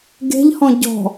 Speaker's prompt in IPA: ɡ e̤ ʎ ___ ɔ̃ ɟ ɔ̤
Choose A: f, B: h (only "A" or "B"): B